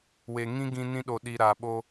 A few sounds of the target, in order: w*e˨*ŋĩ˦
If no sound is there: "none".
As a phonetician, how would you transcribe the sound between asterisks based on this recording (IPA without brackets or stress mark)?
e˨